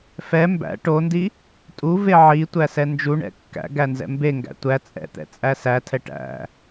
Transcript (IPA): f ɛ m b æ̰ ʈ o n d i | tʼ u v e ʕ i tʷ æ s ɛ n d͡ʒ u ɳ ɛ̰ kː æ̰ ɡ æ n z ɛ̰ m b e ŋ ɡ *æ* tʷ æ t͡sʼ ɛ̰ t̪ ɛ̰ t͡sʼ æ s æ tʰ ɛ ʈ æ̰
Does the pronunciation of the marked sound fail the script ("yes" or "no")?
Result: yes